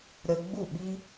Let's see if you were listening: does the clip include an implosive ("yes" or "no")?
yes